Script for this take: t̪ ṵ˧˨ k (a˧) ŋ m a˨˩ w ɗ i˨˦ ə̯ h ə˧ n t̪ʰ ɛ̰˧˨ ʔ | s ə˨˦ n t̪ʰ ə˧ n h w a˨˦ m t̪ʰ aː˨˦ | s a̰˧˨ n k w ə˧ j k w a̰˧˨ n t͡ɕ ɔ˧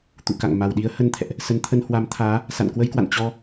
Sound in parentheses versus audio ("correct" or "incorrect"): incorrect